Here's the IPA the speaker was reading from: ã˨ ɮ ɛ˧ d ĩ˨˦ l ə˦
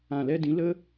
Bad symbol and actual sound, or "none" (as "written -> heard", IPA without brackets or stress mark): ɮ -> l